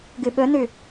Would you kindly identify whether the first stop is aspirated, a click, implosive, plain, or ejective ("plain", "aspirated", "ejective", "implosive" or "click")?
plain